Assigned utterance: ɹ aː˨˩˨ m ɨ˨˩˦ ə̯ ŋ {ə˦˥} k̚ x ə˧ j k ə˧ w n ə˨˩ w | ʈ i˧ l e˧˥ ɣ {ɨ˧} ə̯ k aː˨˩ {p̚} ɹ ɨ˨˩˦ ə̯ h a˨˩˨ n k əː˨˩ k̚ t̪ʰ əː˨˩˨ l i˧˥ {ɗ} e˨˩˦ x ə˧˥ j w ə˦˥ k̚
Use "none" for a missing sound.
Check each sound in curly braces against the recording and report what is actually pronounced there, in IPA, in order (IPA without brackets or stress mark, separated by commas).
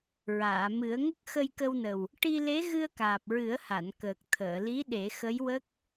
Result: ə˦˥, ɨ˧, p̚, ɗ